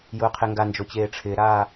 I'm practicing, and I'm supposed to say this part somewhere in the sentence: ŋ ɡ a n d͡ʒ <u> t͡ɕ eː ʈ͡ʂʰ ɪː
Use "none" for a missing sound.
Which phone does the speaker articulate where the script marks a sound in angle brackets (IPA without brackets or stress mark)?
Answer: o